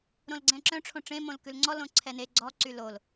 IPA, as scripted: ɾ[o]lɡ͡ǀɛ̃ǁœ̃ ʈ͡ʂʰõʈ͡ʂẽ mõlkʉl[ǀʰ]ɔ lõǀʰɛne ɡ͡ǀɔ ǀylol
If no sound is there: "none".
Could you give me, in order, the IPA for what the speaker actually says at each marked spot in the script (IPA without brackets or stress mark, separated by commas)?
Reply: õ, ŋ͡ǀ